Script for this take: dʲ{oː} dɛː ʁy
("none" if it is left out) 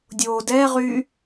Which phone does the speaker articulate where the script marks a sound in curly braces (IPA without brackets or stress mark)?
oː